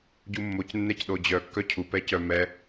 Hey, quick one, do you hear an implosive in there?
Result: yes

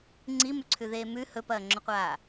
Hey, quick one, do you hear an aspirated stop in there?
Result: yes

